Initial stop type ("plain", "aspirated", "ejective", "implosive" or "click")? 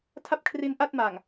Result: aspirated